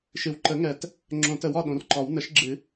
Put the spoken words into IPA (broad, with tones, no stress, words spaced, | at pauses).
ʃɨ˨w ǃə˨˩˦ŋɛ˨˩˦t | ŋ͡ǁõ˨˩˦tə˨˩˦wɒ˨ ɗõ˨rǃɒ˨˩˦w nə˨˩˦ʃɡ͡ǁɨ˨˩˦